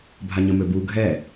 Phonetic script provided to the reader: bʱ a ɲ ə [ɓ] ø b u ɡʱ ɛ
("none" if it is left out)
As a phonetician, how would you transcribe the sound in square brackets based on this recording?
m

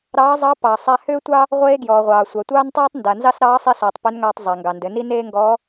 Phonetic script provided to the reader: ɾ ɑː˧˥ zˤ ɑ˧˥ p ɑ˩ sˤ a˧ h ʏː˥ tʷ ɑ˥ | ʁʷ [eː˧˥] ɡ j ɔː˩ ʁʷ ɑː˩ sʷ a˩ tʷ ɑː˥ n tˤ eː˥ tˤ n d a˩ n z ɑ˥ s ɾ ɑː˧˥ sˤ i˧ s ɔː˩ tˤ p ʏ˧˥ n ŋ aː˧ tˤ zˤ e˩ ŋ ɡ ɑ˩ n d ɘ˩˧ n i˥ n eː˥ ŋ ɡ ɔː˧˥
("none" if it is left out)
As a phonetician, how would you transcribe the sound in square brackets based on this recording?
eː˧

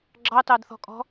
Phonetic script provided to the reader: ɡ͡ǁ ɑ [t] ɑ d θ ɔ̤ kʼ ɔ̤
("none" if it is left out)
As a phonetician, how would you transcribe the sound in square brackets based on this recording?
t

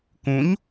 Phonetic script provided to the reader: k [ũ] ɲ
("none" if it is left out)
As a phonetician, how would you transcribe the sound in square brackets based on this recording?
ũ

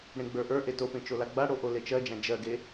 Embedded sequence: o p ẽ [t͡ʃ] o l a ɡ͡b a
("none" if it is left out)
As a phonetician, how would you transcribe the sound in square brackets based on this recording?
t͡ʃ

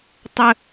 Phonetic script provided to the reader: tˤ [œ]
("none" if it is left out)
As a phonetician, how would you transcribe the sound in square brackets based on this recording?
ə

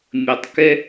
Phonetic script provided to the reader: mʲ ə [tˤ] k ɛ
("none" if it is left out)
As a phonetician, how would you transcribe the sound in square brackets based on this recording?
tˤ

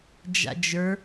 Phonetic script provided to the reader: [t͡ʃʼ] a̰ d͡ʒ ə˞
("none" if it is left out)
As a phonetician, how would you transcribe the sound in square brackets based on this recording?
d͡ʒ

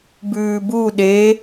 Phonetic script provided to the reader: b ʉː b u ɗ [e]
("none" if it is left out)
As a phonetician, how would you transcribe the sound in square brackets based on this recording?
e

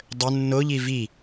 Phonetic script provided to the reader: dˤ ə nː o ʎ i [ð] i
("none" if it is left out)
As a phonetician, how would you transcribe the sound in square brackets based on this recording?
v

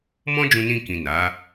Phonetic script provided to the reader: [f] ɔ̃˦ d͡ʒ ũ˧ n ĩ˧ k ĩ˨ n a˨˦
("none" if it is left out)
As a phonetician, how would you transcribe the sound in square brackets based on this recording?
m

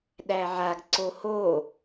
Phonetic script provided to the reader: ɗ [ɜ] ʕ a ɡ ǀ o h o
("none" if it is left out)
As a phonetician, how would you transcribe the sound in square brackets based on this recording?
æ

